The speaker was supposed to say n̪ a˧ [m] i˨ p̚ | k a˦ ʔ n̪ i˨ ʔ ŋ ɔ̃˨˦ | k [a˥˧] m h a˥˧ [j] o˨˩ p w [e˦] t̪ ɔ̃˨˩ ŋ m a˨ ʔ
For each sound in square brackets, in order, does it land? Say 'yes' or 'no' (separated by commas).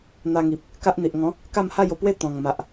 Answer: no, yes, yes, yes